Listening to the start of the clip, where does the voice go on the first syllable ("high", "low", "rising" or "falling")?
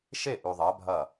falling